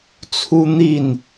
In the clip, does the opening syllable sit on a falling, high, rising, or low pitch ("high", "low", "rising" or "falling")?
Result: high